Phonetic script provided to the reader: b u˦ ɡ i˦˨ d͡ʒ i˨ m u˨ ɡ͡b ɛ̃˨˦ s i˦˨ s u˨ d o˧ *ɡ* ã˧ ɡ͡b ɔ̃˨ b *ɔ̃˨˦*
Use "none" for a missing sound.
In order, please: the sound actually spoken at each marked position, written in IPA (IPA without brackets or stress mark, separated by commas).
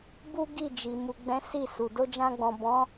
d͡ʒ, ɔ̃˨˦